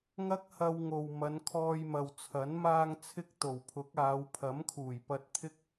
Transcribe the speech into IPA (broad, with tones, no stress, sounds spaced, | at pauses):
ŋ ɐ˥ k̚ h ɐ˧ w ŋ o˨ w m ɐ˨˧ n kʰ ɔː˧ j m ɐ˨ w t͡sʰ ɐ˨˥ n m aː˧ ŋ t͡sʰ ɪ˥ k̚ t̪ o˨˩ w pʰ ʊ˨˥ k̚ aː˨˧ w pʰ ɐ˨˥ m kʰ uː˨˩ j p ɐ˧ t̚ t̪ʰ ɪ˥ k̚